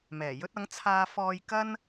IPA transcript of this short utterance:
mɛː˨˩jɵ˥t̚ɐ˨˥ŋ t͡sʰaː˧fɔː˧j kɐ˥n

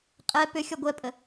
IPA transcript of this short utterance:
qʼɛ pʏ xʲɔɡʷɛpʼə

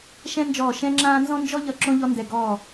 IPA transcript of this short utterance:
ʃɛ̃˥nd͡ʒɔː˦˨ ʃɛ̃˥ŋ͡ǁãː˥ nzɔ̃˥nd͡ʒɔ˥ʎʌ˦˨ ǁõ˥ʎɔ˥ndɛ˦˨ ɡɔː˦˨

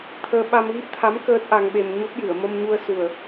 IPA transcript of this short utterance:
t̪ʰəː˧ ɓa˧mɣi˦˥p̚t̪ʰa˧˥m kəː˦˥t̚ʔa˧ŋɓe˧m ɲo˦˥p̚jɨ˨˩˨ə̯ mə˧mɲu˧ə̯su˨˩ə̯

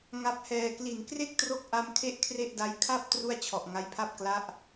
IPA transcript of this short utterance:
ŋa˦˥p̚hɛː˧ kli˨˩n kre˥˩k̚tro˦˥k̚ʔa˧m kʰe˥˩ʔkʰre˥˩ʔda˦˥j kʰa˥˩p̚ tru˥˩a̯t͡ɕʰɔ˨˩ʔ ŋa˦˥jpʰa˥˩p̚ kla˦˥ʔ

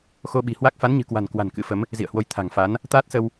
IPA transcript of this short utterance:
xo˧ɓi̤˨˩ hwa˦˥k̚ fa˨˦nɲɨ̤˨˩kwa̤˨˩n kwa̤˨˩nkɨ̰˧˥fə˨˦m | zḭ˧˨ə̯hwo˨˦j t̪ʰa̤˨˩ŋfa˨˦n | t̪aː˦˥t̚sə˧w

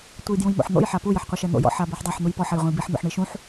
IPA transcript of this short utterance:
tʷejdjũjmo̰ħn̪o̰j ħapu jɘħqʷɛʃɛn̪o̰ jɔ̰ħ abeħdˤaħ n̪ujpɔħ ɐjʁʷɛ̃jbiħ n̪o̰ħɳiʃũħ

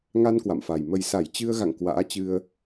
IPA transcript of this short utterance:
ŋa˧n kwa̰˧˨mfa˨˩j mə˨˩jsa˧˩j t͡ɕɨ˧ə̯ɣa̰˧˨ŋ kwa̰ː˧˥ t͡ɕɨ˧ə̯

